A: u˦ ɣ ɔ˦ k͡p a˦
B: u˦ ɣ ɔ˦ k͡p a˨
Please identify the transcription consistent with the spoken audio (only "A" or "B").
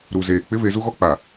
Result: B